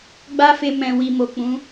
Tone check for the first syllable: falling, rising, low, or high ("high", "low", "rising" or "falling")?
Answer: high